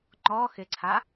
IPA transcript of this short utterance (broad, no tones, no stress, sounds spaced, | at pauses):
ŋ͡ǃ ɔ x ɪ ǀʰ a